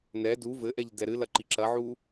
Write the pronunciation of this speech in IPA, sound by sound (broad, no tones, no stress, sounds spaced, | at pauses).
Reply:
n ɛ d u v ɘ ʔ ɛ ʎ d ɛ ɾ ɨ l ɐ ǃ i ǁ ɐ ʕ u